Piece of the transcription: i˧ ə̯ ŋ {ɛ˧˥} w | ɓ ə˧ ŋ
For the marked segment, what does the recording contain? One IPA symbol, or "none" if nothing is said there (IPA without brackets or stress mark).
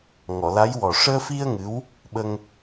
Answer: ɨ˧˥